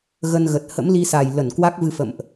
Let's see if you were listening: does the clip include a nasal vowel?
no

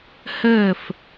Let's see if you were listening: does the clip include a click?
no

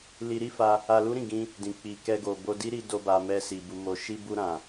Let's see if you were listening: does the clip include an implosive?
no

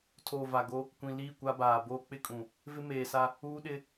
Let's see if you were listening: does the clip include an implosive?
yes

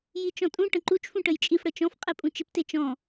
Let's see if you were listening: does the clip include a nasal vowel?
yes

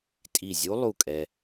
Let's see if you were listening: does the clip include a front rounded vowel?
no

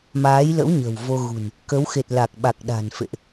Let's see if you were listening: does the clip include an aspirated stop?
no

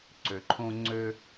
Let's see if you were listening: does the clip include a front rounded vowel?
yes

